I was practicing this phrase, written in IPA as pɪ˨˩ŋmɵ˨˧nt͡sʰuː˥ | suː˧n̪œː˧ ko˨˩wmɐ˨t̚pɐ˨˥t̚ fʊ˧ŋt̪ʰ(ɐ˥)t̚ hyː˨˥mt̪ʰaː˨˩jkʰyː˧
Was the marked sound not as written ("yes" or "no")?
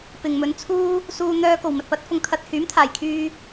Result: yes